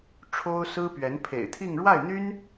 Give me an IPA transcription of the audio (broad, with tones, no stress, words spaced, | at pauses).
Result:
ʈ͡ʂʰo˥ʊ̯sɹ̩˥pɥɛ˧˥n pʰḛ˨˩ɪ̯t̪ʰi˥˧ŋ ɻwa˥˩ɪ̯n̪y˥n